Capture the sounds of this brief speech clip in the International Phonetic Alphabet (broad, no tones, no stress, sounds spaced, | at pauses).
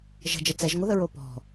ʒ ə̤ d͡ʒ ə t͡s ɛ ʒ ŋʷ ɪ ð ə ɹ o p ɔ̤